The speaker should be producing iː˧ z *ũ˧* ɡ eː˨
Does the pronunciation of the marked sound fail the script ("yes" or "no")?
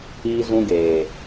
no